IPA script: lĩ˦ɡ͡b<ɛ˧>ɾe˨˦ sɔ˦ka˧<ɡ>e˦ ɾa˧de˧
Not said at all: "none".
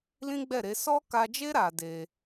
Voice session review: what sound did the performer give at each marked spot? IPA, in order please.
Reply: ɛ˦˨, d͡ʒ

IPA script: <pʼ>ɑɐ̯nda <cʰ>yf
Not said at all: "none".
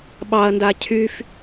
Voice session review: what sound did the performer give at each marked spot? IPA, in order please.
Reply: ɓ, cʰ

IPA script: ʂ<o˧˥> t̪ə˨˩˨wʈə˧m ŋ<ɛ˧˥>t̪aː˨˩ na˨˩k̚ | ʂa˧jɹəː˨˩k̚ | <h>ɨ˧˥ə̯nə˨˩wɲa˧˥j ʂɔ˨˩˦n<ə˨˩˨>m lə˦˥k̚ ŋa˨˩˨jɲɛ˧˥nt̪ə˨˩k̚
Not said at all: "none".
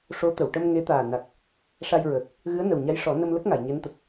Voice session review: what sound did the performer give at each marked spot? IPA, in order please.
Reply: o˧˥, e˧˥, ɣ, ə˧

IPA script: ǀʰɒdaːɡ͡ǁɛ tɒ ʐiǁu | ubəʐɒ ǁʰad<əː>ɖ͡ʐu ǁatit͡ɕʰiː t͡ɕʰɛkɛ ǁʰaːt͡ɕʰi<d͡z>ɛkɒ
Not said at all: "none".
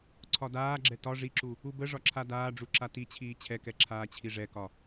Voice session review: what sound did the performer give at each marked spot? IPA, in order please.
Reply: aː, ʐ

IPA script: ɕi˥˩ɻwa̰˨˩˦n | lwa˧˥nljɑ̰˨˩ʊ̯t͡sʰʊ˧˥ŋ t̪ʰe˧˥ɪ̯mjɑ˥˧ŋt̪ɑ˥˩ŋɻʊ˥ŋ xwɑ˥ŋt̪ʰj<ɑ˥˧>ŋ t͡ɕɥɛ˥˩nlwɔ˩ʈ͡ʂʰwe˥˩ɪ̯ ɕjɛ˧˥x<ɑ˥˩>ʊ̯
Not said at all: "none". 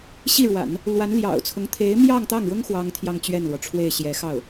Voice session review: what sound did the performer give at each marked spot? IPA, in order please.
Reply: ɑ˥˧, ɑ˥˩

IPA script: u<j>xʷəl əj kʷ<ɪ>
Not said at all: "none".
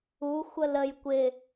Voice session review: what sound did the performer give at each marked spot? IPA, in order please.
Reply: none, ɪ

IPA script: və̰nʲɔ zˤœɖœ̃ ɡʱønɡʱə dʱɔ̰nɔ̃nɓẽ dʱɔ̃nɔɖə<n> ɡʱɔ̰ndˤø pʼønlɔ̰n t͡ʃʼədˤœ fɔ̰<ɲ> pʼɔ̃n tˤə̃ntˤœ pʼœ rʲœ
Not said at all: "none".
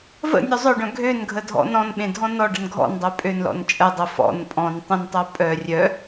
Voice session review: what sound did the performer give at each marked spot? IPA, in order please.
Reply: n, n

